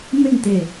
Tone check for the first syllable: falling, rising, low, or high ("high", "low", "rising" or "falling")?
falling